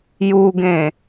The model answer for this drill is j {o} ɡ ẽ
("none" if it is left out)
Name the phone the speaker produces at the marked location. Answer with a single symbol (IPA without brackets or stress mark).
u